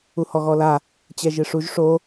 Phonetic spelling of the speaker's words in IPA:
u h ɔ ɣ ɔ l a | t͡ɕ ɛ ʒ ɨ ʂ u ʒ ʂ o

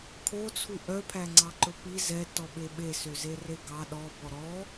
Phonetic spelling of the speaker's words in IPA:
kʰ o t͡sʰ u ʔ œ pʰ æ ŋ͡ǀ ɑ ǃ ɵ p i z ɛ t ɔ ɓ e ɓ e s ø z e r e ɡ ɑ ɗ ɔ b ɔ ɾ ɔ

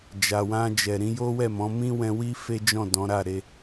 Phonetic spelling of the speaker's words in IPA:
d͡ʒ a˨ w ã˧ d͡ʒ ɛ˨ ɾ ĩ˨˦ j o˦ w ɛ˦˨ m ɔ̃˨˦ m ĩ˦ w ɛ̃˧ w i˦ f e˦ d͡ʒ ɔ̃˦˨ d ɔ̃˨˦ ɾ a˦˨ ɾ e˧

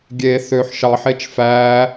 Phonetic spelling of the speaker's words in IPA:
ɡʲ e θ ø ħ ʃ ɑ ħ e t͡ʃ f æ

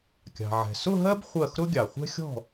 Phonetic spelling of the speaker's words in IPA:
kʲ ɑ̤˩ ʕ ɛ̤˩ s ʊ˥˧ ɦ ɜ˥ b χʷ ɜ˥˩ x ɾ ʊ˥ ɡʲ ɑ˩ χʷ ɛ̤˥ xʲ ɔ̤˥˩

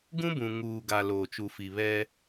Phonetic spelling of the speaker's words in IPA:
ɡ ũ˦ b ũ˨ ŋ uː˨ ɡ a˨ l oː˨ t͡ʃ u˨ f i˨ β ɛ˦

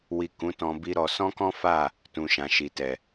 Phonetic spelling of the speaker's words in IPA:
w i˨ k ũ˨˦ t ɔ̃˧ b i˦ ɾ ɔ˧ s ɔ̃˦ k ɔ̃˦ f a˦˨ | t ũ˨ ʃ ã˨ ʃ i˨ t ɛ˨

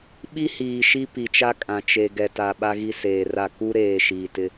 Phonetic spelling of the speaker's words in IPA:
ɓ i˦ h iː˨ ʃ i˦ p i˨ t͡ʃ a˦ kʼ ã˨ t͡ʃ e˨ ɡ ɛ˨ t a˨ ɓ a˦ ɣ i˦ s eː˨ r a˦˨ k u˦ ɾ eː˨ ʃ iː˨ t ɪ˦

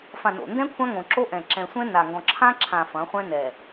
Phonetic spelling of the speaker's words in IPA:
f ã˨ n o̰˨ n d ɛ̃˦ kʷʰ ã˦ ŋ õ˨ ǁ o˦ ʔ ɛ̃˨ ǁ ɛ̃˨ sʷ ɛ̃˦ n a˨ ŋ ɡ ɔ̃˨ ǁʰ ã˦ ǁʰ ã˨ f ɐ̃˨˦ χʷ ɛ̃˦ n ɛ˨

